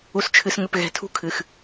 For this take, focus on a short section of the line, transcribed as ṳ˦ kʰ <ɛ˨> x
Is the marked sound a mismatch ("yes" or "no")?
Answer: yes